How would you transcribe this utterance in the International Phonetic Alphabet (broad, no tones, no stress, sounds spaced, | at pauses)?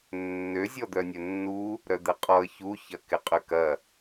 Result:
nː ø zʲ ɔ d̪ œ nʲ œ nː u | ɾ œ d̪ ɛ qʼ ɔ ə̯ ç u ç ɐ k ɪ qʼ ʏ k ɐ